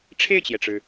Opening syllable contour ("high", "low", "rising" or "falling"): falling